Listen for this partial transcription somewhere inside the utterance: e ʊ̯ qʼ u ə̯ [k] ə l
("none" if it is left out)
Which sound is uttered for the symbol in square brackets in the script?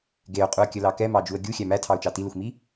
kʲ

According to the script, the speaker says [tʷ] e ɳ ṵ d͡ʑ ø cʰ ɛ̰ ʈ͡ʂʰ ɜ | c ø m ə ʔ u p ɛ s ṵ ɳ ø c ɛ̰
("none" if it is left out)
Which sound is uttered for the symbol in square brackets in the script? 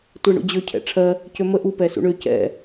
tʷ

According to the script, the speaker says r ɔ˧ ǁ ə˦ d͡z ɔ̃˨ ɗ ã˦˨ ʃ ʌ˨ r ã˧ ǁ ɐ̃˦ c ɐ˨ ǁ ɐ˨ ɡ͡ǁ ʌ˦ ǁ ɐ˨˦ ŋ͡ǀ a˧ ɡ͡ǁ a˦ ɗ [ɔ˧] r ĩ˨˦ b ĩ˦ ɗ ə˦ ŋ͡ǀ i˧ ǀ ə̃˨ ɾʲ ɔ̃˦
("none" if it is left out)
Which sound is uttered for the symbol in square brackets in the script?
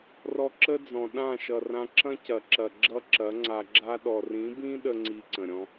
ɔ˨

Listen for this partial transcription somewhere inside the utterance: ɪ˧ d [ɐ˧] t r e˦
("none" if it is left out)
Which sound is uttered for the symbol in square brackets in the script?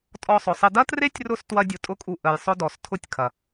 ɐ˦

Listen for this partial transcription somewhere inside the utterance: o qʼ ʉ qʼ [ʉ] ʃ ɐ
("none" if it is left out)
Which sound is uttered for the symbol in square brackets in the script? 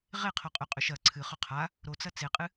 ʉ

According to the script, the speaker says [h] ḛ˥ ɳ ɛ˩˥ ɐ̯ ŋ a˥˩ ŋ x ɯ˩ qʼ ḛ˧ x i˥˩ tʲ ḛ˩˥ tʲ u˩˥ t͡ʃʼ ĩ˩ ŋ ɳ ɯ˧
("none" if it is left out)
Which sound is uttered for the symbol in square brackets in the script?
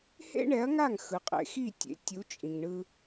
h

